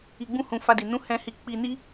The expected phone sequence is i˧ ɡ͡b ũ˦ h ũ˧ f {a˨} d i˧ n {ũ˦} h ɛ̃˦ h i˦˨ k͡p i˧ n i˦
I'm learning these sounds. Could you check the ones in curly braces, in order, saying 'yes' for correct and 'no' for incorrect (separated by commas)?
no, yes